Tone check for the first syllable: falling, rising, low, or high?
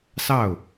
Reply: falling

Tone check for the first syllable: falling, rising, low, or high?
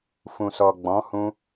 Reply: low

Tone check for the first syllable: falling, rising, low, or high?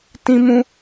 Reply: high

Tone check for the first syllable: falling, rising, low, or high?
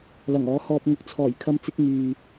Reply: low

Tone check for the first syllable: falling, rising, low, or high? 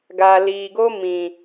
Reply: low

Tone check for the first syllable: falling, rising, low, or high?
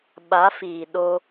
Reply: rising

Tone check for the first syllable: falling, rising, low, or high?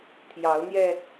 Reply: rising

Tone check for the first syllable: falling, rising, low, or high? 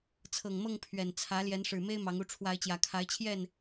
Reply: low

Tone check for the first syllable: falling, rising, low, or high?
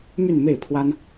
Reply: falling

